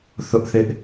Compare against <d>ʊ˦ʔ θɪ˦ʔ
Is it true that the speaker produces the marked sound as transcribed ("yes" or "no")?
no